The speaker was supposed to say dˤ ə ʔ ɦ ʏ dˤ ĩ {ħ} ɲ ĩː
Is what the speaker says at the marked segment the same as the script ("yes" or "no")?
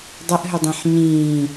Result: yes